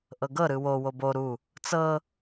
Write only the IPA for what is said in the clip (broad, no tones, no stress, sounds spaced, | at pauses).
ʔ ɤ ɡ ɤ ɾ ɯ w o w o b o ɾ u | t͡s ɤ